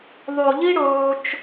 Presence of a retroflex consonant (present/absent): present